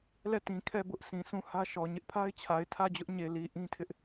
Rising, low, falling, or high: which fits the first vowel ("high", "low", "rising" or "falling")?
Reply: falling